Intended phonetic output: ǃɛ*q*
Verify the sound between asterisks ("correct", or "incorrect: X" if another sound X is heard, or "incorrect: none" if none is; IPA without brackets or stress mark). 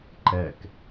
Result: incorrect: k